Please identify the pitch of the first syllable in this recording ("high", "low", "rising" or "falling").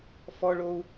high